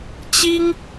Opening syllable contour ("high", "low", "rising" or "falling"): high